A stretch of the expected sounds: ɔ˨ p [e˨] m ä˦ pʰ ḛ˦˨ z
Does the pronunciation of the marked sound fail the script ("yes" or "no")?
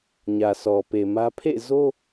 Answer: no